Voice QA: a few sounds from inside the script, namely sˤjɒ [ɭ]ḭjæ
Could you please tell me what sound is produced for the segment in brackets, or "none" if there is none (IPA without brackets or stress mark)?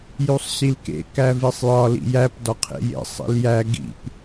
l